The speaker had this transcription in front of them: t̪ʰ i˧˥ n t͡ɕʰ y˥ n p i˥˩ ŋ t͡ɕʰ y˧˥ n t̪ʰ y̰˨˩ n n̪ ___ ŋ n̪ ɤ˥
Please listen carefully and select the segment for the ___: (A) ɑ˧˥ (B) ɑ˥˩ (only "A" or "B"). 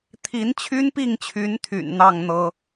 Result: B